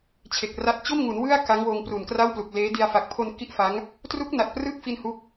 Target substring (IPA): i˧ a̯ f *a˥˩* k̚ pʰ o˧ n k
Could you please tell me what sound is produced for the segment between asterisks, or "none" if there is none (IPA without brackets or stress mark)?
a˨˩